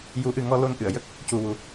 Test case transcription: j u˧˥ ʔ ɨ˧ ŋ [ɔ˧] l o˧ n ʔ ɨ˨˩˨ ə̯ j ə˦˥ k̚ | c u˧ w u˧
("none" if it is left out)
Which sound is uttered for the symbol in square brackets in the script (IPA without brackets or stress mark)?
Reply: ɔ˧